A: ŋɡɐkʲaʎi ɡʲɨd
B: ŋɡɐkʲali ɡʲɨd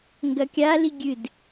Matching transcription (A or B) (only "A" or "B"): B